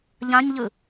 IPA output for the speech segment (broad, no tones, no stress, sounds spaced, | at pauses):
ʎ ã ɲ ʎ ɯ